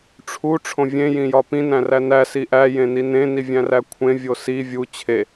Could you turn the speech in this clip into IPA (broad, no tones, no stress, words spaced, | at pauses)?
ʈ͡ʂʰu ʈ͡ʂʰõvʲẽ jĩjɒpĩ næ̃rænæ siʔæ jẽninẽ nivʲæ̃rækʷʰẽ vʲosi vʲu t͡ɕʰe